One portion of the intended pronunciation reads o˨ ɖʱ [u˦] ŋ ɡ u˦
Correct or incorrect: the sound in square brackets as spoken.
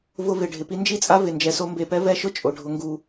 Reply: incorrect: ʊ˦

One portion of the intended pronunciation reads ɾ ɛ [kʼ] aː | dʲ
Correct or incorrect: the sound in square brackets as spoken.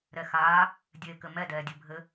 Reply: incorrect: x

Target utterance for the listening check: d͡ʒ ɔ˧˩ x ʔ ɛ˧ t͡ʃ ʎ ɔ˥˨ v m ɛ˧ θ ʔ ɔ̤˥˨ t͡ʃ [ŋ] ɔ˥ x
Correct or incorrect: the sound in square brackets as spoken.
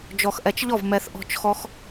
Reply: incorrect: x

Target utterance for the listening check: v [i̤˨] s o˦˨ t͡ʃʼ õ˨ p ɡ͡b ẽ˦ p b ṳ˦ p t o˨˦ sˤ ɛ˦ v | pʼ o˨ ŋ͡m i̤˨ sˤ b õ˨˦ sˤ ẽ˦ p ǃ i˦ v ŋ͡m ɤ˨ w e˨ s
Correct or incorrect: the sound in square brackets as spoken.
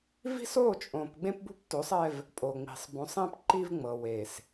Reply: incorrect: i̤˦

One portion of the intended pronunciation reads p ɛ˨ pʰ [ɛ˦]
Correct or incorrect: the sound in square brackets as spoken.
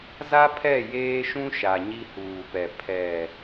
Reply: incorrect: ɛ˨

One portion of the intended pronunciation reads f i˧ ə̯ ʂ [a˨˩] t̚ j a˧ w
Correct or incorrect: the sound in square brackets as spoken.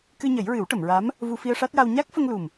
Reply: incorrect: a˦˥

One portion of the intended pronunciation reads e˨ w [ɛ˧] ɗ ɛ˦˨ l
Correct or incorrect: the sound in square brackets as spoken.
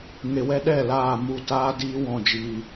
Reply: correct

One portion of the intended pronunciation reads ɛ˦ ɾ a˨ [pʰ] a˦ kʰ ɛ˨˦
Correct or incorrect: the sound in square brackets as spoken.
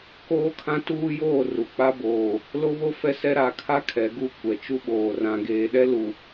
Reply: incorrect: kʰ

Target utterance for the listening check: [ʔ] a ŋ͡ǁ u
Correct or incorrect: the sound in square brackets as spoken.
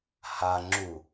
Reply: incorrect: h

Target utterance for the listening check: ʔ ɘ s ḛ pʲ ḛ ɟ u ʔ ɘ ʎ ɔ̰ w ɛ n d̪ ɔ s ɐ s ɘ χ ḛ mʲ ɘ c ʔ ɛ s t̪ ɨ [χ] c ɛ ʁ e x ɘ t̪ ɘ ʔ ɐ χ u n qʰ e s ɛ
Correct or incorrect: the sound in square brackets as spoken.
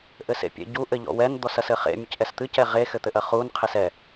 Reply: incorrect: none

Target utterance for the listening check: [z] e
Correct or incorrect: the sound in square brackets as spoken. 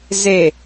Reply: correct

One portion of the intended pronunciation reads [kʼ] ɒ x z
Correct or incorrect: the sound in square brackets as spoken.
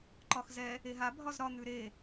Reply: incorrect: ǃ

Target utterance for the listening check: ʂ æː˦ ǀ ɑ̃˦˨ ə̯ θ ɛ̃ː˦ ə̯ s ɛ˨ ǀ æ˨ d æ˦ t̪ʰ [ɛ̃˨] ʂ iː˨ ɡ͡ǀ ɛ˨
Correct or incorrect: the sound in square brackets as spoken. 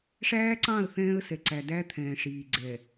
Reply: incorrect: ɛ̃ː˨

